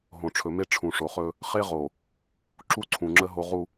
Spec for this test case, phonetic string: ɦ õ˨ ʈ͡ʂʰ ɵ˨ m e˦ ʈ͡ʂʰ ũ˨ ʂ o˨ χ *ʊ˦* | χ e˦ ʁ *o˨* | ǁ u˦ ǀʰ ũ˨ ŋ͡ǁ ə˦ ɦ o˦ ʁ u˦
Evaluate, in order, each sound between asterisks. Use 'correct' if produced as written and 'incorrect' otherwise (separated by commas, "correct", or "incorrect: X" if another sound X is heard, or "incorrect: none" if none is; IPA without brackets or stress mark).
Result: incorrect: ɵ˦, correct